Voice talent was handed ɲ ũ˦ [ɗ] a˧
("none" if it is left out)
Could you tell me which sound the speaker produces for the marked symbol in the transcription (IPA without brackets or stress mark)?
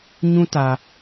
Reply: t